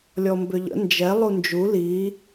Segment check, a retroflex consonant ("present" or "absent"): absent